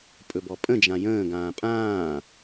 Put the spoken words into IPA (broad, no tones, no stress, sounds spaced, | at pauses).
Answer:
pʼ ɵ b ɔ pʼ ə̃ d͡ʒ ã j ə̃ː ɡ ãː pʼ ãː